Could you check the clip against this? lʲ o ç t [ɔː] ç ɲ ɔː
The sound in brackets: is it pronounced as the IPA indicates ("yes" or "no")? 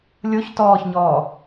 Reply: yes